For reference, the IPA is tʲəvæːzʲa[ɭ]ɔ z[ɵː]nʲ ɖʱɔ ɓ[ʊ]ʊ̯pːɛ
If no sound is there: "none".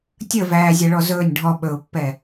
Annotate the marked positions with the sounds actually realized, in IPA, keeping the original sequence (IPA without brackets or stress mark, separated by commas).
ɭ, ɵː, ɵ